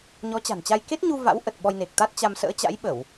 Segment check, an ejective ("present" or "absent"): absent